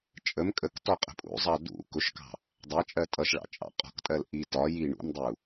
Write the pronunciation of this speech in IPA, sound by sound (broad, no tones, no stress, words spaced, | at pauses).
t͡ʃʼəm kʼək tɔqʼə̤pʼṵzˤɑ dṵ kʊʃkɑ̤ | dˤæt͡ʃʼɜ tʼʌʃɭɑ̰ t͡ʃʼɑ̰qʼɔ̤ktʼɜl ʔi tɒ ji ɳṵmdˤu